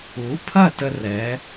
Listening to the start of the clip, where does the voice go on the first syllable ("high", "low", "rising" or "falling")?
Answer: rising